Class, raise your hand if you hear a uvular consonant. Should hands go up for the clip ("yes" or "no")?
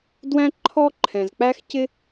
no